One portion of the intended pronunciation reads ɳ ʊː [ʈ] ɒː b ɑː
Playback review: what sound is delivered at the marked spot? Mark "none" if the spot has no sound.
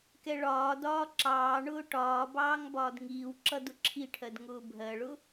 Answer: ʈ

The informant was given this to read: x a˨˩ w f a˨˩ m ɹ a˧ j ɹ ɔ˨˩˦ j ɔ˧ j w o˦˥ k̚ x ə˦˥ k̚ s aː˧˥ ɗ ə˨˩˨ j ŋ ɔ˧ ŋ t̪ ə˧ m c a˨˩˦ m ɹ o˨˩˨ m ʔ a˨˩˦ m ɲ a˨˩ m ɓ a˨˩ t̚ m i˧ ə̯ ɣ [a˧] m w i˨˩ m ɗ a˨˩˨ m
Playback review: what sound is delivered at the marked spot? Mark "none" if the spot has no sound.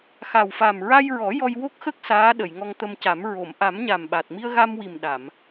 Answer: a˧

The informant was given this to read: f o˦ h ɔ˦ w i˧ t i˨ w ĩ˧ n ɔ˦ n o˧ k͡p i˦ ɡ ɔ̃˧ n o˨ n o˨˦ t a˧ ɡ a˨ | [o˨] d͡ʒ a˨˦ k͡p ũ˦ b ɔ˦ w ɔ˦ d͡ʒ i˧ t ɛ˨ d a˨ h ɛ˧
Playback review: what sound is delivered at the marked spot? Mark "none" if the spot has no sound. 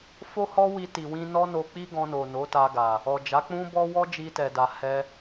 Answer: ɔ˨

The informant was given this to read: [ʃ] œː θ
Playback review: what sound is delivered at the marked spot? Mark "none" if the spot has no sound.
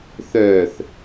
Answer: θ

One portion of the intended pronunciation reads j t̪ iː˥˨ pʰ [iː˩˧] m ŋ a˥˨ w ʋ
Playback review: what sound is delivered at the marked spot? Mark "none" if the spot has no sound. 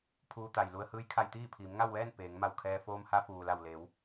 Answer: iː˩˧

